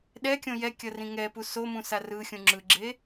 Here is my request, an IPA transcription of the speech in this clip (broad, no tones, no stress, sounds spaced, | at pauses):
ɗ ɛ kʲ õ j ɛ kʲ ʌ r ĩ ŋ ɛ p u s o m ũ s a r ɯ xʲ ũ ŋ͡ǁ ɯ ɡ͡ǁ e